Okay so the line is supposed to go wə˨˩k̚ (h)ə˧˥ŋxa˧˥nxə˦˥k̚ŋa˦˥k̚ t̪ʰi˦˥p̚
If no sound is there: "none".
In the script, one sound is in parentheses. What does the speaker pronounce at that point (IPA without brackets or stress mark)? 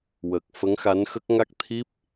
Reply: f